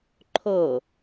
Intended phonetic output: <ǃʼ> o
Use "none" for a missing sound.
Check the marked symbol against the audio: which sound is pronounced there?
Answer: ǃʰ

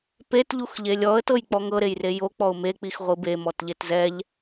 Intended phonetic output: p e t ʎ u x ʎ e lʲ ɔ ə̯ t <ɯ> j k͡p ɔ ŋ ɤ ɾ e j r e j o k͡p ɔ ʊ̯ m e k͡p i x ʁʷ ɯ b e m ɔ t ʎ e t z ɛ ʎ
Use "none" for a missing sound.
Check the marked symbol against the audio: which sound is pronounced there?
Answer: ɤ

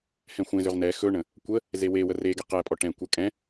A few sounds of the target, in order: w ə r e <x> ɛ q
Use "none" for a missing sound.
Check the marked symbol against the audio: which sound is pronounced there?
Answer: ɡ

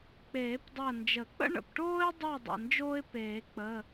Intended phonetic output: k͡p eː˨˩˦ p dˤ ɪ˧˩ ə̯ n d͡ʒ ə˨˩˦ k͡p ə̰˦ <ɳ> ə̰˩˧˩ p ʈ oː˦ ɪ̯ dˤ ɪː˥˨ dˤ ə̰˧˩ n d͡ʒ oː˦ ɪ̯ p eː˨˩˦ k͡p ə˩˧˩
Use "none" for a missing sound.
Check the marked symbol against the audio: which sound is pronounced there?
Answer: ɳ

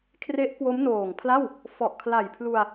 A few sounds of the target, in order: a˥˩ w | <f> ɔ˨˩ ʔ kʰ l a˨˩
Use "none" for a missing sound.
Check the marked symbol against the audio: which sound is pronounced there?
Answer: f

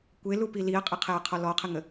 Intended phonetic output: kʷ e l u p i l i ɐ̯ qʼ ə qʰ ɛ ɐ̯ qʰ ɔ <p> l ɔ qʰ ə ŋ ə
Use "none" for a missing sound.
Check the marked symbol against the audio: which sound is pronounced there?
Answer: none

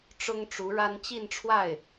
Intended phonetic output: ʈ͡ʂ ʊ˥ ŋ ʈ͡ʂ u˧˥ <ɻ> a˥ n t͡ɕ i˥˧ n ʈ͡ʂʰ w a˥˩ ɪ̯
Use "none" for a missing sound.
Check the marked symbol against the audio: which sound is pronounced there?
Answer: ɻ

